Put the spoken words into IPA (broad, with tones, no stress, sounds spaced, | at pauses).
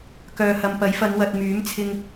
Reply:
k œː˨ h ɐ˨ m p ɐ˨˥ j f ɐ˨˧ n w ɐ˨ t̚ m yː˨˥ m t͡sʰ ɪ˧ ŋ